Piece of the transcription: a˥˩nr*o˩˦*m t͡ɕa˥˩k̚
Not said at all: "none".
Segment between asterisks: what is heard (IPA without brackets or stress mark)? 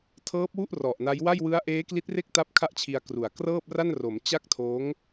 o˩˦